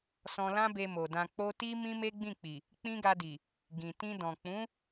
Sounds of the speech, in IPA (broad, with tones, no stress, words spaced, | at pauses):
sɔ̃˧lã˦be˧mo˨ dã˨k͡po˧ ti˦ mĩ˦me˦ ɡ͡bĩ˦˨k͡pi˨ | k͡pĩ˦ɡa˧di˨ | ɡĩ˨tĩ˧dɔ̃˨ k͡pũ˨˦